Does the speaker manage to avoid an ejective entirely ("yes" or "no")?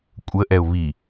no